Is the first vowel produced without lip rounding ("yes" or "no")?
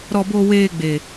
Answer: no